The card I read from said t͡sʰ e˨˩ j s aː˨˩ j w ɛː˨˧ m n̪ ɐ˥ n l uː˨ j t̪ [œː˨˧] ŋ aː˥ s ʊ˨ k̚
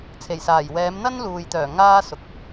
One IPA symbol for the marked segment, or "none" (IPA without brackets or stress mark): œː˨˩